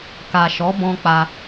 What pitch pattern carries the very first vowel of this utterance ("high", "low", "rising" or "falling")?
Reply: low